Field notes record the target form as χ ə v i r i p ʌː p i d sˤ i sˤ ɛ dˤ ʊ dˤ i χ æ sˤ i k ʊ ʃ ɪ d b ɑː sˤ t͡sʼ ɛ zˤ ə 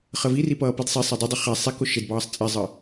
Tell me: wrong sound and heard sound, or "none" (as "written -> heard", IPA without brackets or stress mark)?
none